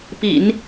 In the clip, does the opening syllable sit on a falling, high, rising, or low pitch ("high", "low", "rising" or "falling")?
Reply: low